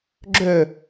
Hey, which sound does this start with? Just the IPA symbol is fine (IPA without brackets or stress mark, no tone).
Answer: ɡ͡ǁ